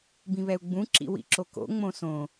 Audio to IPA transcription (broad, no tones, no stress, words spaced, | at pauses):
bĩβɛu̯ɡ͡bũ ǁḭwḭǁoko̰ ŋ͡mõsõ